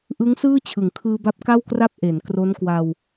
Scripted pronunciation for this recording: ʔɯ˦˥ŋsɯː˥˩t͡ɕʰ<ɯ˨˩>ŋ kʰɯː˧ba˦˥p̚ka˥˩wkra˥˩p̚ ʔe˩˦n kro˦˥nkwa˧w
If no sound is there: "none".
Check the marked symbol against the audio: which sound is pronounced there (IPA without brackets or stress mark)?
ɯ˨˩